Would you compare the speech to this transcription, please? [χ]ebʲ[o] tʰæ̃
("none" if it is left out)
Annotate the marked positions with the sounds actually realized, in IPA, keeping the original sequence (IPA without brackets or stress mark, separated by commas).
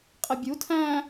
qʼ, u